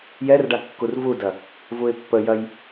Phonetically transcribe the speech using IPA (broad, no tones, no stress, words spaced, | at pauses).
jɛrɖa kːurvudɐ | vuɪ̯pːəjɐj